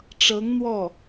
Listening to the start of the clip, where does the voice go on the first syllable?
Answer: rising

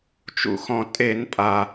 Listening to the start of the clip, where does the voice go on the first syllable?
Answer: high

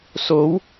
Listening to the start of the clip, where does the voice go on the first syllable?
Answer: rising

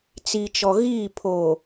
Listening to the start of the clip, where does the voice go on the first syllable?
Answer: low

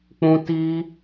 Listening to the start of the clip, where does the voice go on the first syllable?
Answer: high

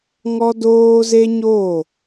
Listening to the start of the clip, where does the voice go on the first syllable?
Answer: high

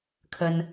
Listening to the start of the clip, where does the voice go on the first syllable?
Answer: high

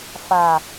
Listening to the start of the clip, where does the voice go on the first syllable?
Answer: low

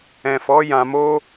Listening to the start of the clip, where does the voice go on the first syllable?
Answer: low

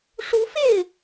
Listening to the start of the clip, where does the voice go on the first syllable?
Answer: rising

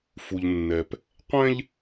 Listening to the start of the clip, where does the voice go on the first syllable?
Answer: low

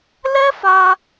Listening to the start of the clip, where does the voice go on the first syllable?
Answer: high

